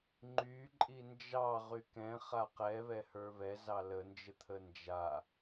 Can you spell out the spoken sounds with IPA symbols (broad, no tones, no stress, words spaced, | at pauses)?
ŋ͡ǃyǃʼi nd͡ʒɑ ʁykɛ̃ χaqɛ βɛhə˞βɛ zɑlənd͡ʒə t̪ʰənd͡ʒa